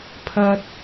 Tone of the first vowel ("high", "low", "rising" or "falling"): high